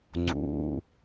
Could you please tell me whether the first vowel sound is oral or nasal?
oral